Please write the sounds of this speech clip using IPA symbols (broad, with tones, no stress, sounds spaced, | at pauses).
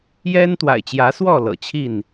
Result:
j ɛ˦ n t̪ w a̰˨˩ ɪ̯ t͡ɕ j ä˨˦ s w ɔ˥˨ l ɤ̰˨˩ t͡ɕʰ i˥˨ n